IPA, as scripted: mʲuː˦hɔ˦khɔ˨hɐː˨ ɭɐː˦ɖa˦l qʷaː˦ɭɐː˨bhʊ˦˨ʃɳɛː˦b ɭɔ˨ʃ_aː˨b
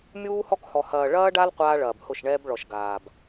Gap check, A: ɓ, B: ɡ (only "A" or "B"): B